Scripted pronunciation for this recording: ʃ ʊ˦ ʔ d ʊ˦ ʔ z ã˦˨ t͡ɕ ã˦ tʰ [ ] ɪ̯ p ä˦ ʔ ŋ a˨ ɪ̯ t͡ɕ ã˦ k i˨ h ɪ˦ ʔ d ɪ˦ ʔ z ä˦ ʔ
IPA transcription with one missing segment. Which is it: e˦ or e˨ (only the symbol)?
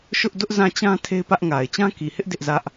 e˦